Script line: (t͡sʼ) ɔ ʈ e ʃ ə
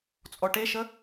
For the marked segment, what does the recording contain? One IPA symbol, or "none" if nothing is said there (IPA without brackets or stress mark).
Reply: t͡sʼ